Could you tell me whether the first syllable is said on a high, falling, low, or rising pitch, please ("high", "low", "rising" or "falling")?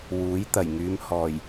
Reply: rising